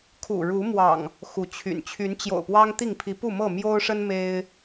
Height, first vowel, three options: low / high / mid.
high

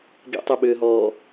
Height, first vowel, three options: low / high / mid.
mid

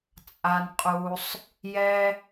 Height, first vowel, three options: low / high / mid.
low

